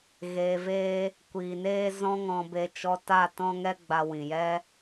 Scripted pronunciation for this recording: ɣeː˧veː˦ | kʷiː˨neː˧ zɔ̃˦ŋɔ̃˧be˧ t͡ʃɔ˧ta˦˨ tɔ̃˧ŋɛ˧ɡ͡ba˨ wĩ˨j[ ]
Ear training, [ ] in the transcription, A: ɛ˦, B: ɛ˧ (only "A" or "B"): A